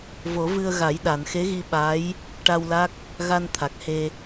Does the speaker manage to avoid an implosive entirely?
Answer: no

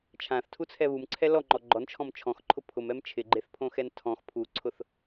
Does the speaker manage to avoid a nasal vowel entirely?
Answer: no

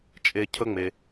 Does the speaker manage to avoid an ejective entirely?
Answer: no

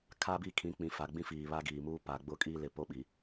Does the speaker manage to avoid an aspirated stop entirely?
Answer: no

